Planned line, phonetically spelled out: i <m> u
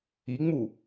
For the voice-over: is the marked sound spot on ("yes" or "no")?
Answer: no